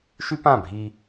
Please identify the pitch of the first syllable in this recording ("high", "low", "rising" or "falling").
high